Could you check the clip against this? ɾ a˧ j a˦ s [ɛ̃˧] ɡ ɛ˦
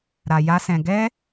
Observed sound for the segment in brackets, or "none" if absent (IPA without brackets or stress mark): ɛ̃˧